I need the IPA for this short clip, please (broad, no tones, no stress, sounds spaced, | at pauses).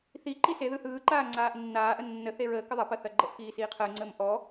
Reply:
θ i ǃ i s e ð ɯ h ɯː ǃ aː ŋ͡ǀ aː ʔ nː aː ʔ ə nː ə θ e ɹ əː k ə ðˤ ɐ p ɐ θ ɐ ɡ͡ǃ ə ʔ k iː s iː qʰ əː ŋ͡ǀ əː m ʔ ɔ